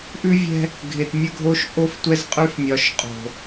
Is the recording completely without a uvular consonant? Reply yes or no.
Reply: no